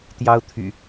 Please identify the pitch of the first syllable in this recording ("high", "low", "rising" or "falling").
high